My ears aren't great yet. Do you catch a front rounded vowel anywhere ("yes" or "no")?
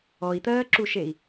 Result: no